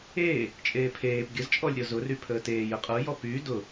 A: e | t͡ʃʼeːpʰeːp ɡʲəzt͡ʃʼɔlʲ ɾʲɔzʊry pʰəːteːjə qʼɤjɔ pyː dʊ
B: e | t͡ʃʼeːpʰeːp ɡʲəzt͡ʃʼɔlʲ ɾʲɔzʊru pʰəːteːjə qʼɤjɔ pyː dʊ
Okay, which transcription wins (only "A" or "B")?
A